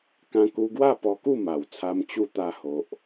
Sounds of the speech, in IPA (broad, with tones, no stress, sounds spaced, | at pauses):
k ã˧ k u˧ ɡ w a˥˧ p ɔ˧ k u˥˧ m a˨˩ w t͡sʰ a˧ m t͡ɕ u˥˧ t̪ a˦ h o˦ ʔ